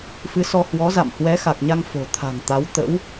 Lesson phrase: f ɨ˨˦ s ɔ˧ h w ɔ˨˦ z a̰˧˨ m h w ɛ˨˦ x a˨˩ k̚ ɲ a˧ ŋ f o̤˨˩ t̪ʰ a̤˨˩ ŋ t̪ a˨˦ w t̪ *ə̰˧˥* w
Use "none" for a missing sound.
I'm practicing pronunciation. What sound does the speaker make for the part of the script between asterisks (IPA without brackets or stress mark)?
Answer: ə̰˧˥